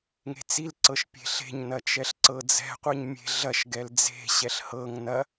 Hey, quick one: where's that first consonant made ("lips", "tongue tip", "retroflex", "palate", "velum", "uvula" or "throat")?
velum